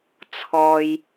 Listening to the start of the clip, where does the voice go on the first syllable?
low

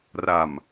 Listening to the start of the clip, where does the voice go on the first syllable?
low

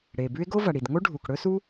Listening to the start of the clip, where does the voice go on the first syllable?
low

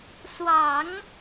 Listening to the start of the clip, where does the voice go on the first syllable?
low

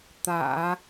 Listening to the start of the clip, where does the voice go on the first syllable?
low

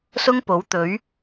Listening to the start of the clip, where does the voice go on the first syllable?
high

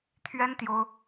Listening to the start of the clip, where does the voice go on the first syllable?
high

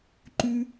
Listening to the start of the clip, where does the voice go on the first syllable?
high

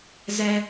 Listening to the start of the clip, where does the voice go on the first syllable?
low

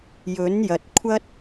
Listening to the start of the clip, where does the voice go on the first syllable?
rising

